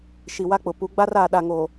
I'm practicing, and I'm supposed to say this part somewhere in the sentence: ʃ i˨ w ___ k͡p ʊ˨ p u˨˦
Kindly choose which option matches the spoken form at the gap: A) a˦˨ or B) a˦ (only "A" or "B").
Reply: B